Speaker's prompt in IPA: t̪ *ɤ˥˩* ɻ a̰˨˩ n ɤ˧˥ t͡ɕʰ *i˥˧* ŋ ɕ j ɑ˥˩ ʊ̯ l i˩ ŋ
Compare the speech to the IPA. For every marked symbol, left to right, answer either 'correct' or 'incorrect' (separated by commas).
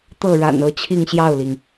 correct, correct